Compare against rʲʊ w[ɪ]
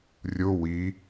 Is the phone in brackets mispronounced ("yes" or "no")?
yes